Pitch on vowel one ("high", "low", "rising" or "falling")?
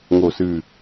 low